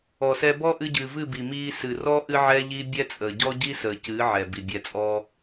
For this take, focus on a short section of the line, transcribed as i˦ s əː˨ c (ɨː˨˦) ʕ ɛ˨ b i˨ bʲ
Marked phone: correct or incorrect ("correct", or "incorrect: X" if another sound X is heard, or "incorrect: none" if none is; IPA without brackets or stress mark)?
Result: correct